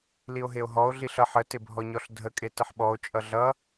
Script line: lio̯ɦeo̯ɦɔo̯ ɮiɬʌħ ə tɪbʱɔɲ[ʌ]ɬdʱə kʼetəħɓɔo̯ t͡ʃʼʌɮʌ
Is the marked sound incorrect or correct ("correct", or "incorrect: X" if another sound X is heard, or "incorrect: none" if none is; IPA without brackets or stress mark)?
incorrect: ɔ